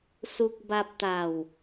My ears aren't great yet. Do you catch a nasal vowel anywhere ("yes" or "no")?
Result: no